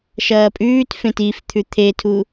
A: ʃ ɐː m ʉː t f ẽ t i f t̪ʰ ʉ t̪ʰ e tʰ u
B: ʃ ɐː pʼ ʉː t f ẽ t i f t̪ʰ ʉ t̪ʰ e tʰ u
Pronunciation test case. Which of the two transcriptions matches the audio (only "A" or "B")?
B